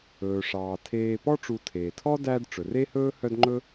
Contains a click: yes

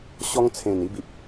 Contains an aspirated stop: yes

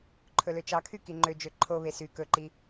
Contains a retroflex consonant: no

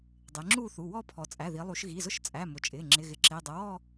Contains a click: yes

